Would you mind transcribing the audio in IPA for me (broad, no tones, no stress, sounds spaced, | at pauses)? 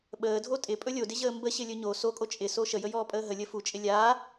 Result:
ɓ əː dʱ o tʼ ɪ pʼ ɵ lʲ o d ɪ ʑ əː m b ə ɕ ɪ lʲ ɵ ɲ o s o kʼ o t͡ʃʼ ɪ s o ʃ ə j ə j ɔː pʼ əː ɦ ə lʲ ə f u t͡ʃʼ ɪ lʲ a